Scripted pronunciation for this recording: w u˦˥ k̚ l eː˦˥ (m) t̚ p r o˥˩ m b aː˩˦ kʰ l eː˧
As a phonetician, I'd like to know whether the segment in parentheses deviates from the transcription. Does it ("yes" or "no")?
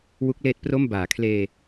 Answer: yes